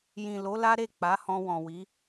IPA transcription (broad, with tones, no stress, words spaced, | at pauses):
jĩ˨lo˨˦la˦ ɾe˦˨ k͡pa˨˦hɔ̃˧wɔ̃˨wi˨˦